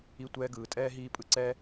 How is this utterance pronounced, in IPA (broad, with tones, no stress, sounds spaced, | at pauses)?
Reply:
i˧ tʷ ɛː˧ ɡ ɯː˨ tʼ ɛː˦ ɦ iː˦ pʼ ɯ˦ ǀ ɛ˦